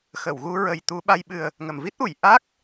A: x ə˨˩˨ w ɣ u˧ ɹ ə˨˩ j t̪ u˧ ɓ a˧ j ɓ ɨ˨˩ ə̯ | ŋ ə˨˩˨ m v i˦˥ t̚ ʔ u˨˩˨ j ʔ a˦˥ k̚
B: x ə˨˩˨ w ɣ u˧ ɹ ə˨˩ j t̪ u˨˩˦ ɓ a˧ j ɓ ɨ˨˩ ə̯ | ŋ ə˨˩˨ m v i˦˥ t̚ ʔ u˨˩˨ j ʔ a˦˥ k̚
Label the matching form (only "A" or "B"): A